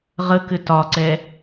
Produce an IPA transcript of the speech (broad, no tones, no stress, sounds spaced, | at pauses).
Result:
ʁ ə k ɘ t ɒ ǀ ɛ